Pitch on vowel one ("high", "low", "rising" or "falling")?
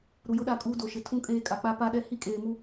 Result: low